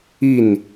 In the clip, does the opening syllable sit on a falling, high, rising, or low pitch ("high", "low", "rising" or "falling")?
falling